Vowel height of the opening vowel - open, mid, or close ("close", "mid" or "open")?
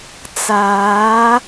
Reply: open